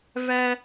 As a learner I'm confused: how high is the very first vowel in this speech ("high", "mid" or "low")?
low